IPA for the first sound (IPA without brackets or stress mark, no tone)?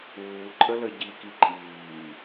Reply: uː